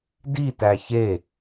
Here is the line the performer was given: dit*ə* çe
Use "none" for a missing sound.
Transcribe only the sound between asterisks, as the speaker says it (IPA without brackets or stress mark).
æ